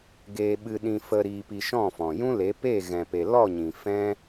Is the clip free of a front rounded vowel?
yes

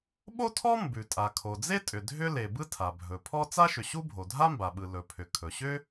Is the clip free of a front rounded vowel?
no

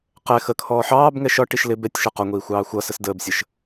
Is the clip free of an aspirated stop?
no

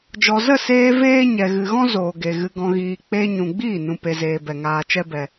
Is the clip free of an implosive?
yes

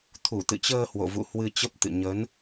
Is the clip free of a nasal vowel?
yes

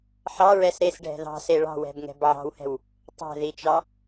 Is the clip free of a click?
yes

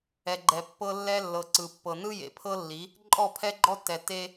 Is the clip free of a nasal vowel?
yes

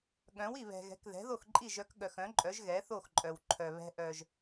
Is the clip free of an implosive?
no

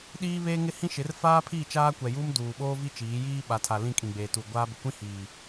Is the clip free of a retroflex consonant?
yes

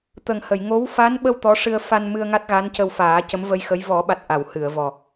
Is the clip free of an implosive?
no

